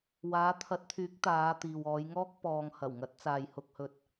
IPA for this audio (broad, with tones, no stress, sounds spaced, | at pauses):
w aː˨˧ t̪ʰ ɐ˨˥ t̚ t̪ʰ yː˨˥ k̚ t̪ aː˨˧ t̪ iː˨ w ɔː˨˧ j ŋ ɔː˥ k̚ p ɔː˧ ŋ h ɐ˨˩ w ŋ ɐ˨˥ t̚ t͡s aː˨ j h ʊ˧ k̚ h ɵ˧ t̚